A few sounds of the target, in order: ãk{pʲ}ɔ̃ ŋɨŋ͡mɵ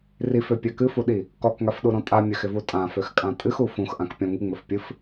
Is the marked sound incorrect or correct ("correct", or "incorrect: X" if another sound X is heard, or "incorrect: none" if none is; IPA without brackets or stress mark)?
correct